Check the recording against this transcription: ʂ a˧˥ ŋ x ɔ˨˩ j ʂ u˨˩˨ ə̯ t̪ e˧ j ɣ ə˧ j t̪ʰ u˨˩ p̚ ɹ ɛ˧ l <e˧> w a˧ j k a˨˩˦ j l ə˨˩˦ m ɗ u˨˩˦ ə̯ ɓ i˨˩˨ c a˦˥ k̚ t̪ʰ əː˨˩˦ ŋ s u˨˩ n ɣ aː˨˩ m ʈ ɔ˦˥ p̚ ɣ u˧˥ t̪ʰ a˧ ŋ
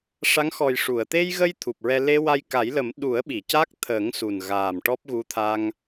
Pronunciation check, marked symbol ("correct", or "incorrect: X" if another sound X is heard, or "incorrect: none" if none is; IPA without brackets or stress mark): correct